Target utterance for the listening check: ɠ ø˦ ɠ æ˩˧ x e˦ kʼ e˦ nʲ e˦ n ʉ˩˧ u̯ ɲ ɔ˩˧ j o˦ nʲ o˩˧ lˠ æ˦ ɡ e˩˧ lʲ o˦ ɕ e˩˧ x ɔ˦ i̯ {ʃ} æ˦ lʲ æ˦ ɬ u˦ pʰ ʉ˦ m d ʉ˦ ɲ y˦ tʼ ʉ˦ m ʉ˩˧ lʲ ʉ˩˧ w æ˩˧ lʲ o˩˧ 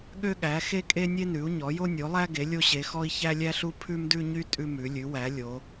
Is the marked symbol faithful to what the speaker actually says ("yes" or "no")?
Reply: no